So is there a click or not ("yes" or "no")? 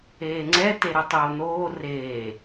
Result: yes